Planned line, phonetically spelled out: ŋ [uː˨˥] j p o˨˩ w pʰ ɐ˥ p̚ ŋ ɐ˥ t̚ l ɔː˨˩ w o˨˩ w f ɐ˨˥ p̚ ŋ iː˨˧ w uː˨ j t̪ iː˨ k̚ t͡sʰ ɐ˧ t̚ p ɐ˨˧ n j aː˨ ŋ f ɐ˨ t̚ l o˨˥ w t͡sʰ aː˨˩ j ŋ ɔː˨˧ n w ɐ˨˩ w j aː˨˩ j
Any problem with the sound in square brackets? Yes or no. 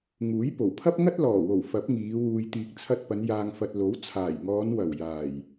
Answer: no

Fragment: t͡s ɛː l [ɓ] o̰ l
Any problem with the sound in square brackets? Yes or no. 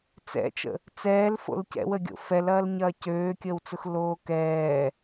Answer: yes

